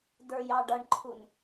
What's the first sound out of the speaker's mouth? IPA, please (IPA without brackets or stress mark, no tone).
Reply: d